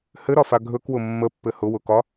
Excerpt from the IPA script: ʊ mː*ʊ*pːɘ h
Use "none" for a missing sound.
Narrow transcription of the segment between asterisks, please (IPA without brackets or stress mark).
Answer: ə